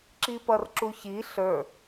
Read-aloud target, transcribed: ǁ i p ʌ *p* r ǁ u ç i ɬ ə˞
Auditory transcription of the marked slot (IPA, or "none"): none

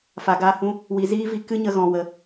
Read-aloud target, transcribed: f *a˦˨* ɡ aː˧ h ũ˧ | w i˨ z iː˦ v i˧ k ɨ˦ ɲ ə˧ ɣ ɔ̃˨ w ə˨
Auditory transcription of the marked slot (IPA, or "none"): a˨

